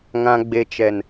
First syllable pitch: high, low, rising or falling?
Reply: low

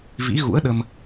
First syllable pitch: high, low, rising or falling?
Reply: rising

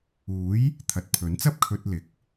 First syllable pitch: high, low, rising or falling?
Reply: rising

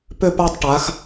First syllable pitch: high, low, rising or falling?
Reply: falling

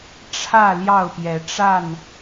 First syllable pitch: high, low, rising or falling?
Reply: falling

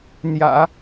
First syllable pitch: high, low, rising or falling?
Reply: low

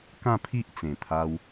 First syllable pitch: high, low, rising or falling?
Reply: falling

